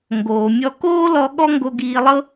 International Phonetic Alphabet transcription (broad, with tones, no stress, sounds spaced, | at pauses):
ŋ ɡ oː˩ mʲ ɔ˧ k oː˥ l ɔ˧ ɠ ɔ˥ ŋ ɡ o˧ ɡ iː˧ lˠ ɤ˥